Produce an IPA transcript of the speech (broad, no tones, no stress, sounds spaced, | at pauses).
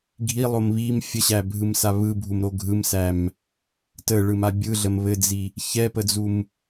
ɡʱ i lˠ o m β i m fʲ ə ɕ æ bʱ ɯ m s a β ɯ bʱ u m ɾ o ɡʱ ɯ m s æ m | t ə ɭ ɯ m a bʲ ɯ ɮ ə m β ɘ d͡z i | ç ɛ p ə d͡z u m